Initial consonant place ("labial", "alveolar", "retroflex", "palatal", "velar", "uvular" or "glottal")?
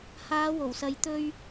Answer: glottal